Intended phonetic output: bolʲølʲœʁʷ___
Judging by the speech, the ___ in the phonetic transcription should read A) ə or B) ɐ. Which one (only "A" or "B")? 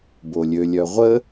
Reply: A